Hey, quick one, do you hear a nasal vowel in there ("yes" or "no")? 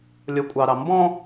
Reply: yes